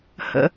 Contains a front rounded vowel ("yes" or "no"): no